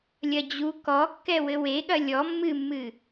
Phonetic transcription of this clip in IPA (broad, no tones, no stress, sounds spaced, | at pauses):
lʲ ɐ d͡ʑ u k ɔ kː ɛ w ɘ w e ɠ ɐ lʲ ɔ mː ɨ mː ɨ